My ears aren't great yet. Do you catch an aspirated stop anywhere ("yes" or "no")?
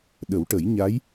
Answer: no